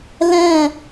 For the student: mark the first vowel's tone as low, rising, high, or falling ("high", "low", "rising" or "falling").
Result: falling